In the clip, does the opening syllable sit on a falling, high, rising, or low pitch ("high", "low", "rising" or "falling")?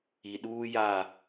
low